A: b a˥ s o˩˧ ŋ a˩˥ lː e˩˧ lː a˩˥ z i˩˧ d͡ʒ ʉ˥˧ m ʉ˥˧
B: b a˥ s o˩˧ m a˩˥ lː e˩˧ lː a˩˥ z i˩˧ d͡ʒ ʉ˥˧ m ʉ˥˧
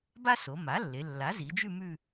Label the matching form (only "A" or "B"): B